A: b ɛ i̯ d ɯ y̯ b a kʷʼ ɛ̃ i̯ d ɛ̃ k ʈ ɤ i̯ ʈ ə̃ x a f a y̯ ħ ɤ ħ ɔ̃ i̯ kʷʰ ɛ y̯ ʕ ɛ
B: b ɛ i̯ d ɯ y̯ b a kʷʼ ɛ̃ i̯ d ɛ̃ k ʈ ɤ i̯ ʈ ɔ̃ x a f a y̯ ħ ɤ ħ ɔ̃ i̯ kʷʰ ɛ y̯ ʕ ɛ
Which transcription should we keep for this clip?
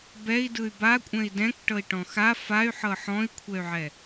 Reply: B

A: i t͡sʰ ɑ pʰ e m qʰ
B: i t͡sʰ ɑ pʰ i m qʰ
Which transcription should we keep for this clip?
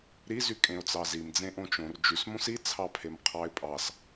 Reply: A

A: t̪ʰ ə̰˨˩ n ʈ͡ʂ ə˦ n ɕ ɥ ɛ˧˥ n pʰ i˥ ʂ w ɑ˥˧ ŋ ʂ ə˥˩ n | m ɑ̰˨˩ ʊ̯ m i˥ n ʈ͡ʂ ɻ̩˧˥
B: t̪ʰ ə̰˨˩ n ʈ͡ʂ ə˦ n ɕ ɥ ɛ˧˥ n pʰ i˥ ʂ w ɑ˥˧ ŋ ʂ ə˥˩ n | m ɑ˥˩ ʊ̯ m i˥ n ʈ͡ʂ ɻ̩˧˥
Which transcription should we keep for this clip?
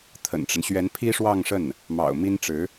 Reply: A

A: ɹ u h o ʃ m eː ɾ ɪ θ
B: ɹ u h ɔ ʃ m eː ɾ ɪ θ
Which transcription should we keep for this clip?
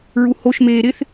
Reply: A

